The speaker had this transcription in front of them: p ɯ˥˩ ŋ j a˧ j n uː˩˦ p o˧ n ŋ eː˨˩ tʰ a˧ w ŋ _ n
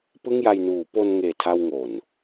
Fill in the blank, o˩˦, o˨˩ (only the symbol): o˨˩